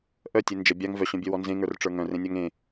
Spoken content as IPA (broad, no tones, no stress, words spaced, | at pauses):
ʔœtʲe nd͡ʒə bʲaŋ vœɕœ̃bʲœwɔ nzẽŋə˞rʈ͡ʂə˞ ŋœ̃rẽnʲaŋ ẽ